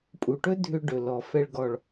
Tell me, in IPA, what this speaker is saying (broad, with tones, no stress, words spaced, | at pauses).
pʼu˨ʈɵ˦ dʱʏ˧ ɖɵ˨lɔ˨ fɛ˨ɭɡɔ˨ɭ